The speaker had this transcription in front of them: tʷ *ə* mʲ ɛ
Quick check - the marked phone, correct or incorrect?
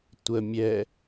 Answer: correct